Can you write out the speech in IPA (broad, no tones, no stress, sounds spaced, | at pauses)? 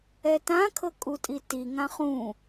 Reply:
ɛ t ã kʰ ɤ kʼ u tʼ i t i ŋ ã χ ũ